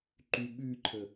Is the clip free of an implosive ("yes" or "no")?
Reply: no